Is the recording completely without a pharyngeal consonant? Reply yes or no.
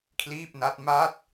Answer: yes